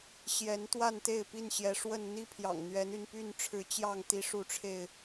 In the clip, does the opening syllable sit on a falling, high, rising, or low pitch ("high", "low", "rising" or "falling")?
rising